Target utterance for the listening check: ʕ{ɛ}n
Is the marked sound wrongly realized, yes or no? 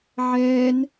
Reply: yes